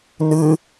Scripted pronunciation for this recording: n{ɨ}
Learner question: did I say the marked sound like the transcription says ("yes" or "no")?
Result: yes